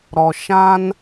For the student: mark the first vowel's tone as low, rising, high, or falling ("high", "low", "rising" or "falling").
low